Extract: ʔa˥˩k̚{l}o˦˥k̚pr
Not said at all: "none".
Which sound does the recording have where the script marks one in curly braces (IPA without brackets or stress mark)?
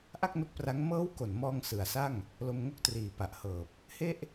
n